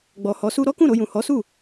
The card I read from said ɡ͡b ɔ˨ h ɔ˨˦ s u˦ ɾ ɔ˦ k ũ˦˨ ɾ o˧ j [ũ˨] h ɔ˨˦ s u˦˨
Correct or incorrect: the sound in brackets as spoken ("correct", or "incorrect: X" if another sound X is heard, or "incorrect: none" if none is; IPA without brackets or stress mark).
correct